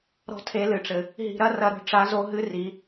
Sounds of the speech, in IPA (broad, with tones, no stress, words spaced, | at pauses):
ɾɔ̤˥tʰe˧˥lɨ˩ʈ͡ʂɘ˩ | ɦi̤˧ɾɐ˥rɐ˧ɾo̤˧˥ ʈ͡ʂa˧˥zo˧˥ɦɨ˧˥ ri˩˧